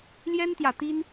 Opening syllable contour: high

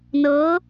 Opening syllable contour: rising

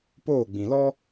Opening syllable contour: falling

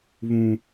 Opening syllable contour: high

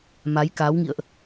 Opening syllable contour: rising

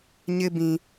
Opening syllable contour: high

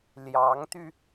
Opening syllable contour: rising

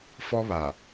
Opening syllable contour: high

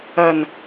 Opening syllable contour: low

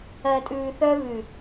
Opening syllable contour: low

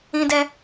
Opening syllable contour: high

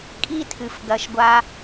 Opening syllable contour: high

